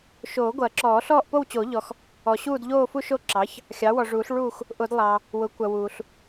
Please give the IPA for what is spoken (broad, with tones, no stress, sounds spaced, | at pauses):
ʃ oː˨˩˦ ɡʷ ɐː˨˩˦ ǁ ɔː˨˩˦ ɬ ɔː˦˨ ʔ p o˦˨ w t͡ɕ o˨˩˦ ʎ ɔ˨ x | ɔ˨ ɕ uː˦˨ d ʎ oː˦˨ f u˦˨ ʃ o˦˨ ǁ ɑ˩˥ ç | xʲ ɑ˩˥ w ɔ˨ ʐ uː˨˩˦ ɬ ɭ uː˦˨ x | ʔ ʊ˨˩˦ d lˠ ɑː˨ | w ʊ˩˥ kʷ ɐ˨ w uː˨ ɬ